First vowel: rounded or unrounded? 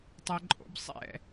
unrounded